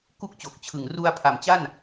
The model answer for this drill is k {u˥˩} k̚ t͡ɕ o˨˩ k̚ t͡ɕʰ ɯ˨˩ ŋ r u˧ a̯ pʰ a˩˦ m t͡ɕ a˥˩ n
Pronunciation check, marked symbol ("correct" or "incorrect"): correct